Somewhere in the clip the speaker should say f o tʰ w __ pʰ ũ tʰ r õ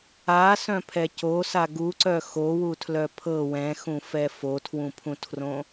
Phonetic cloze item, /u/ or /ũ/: ũ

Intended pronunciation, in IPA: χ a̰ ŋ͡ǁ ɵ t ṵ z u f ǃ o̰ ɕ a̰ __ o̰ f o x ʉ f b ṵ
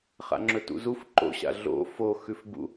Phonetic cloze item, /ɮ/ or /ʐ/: ɮ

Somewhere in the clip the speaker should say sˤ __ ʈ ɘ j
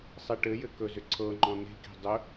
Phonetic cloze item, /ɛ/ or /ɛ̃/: ɛ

